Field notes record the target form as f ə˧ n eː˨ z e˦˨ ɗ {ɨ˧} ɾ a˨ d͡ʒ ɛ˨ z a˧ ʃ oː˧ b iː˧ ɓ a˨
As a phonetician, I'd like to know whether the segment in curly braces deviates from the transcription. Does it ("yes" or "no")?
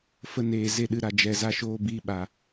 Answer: no